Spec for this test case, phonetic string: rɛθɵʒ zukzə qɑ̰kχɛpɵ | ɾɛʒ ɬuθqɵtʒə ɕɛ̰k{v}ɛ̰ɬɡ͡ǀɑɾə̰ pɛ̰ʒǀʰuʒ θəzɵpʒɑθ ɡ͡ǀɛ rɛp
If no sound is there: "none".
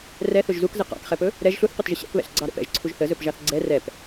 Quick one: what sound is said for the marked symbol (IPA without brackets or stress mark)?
β